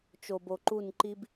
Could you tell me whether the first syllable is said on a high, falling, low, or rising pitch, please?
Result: low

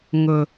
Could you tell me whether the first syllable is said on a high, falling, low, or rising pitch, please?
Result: low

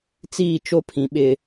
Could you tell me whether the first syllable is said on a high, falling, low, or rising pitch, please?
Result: falling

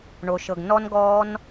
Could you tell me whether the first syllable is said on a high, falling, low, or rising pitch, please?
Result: low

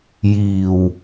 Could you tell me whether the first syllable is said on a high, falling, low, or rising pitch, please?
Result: low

